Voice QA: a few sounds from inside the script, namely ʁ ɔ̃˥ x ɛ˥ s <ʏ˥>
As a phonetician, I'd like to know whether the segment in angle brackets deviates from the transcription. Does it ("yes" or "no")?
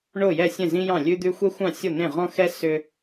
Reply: no